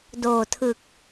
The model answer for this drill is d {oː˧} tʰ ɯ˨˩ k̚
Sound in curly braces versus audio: incorrect: oː˨˩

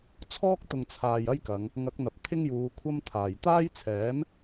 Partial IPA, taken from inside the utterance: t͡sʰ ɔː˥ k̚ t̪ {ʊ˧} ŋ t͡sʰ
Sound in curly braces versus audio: incorrect: ʊ˨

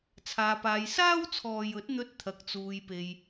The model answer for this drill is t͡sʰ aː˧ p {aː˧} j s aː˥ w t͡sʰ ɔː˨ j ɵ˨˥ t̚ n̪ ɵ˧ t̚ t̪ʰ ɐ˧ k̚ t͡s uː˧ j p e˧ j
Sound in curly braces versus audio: correct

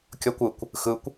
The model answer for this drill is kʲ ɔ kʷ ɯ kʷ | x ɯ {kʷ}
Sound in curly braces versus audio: correct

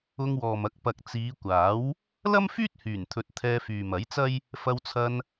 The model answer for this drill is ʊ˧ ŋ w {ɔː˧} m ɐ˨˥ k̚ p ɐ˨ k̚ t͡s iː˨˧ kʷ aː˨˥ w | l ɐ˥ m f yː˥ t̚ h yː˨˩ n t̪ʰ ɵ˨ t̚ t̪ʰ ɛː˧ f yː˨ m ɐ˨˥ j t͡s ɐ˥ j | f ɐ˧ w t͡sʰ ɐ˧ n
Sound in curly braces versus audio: incorrect: ɔː˨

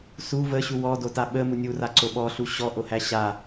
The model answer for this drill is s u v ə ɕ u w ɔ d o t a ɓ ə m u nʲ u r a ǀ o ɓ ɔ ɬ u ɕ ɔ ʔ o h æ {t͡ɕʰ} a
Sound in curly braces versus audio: incorrect: ɕ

